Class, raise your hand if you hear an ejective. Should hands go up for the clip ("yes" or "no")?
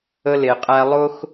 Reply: yes